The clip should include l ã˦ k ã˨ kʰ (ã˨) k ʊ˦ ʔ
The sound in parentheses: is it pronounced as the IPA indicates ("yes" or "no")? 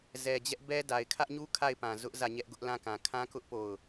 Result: no